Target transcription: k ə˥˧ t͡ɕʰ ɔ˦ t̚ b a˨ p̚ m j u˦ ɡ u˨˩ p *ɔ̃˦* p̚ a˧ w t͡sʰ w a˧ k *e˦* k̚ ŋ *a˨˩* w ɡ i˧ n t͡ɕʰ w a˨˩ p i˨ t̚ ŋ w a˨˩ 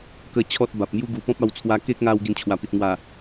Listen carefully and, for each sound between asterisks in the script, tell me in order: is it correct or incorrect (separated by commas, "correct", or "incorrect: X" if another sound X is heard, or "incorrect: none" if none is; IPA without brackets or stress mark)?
correct, correct, incorrect: a˧